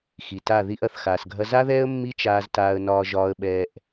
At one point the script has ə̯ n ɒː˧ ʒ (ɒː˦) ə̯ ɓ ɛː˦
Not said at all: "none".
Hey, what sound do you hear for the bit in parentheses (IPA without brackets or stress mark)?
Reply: ɒː˦